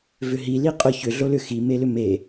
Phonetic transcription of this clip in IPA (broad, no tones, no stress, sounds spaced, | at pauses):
v ʏ ɦ i l i qʼ ʊ ç ʏ ɮ o l ʏ x i m e l ʏ m e